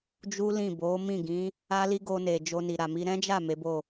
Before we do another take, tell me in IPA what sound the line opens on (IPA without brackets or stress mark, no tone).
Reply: d͡ʒ